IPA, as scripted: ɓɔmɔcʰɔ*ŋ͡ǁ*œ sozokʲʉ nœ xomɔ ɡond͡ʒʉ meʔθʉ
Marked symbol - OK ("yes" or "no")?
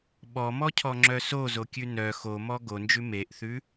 yes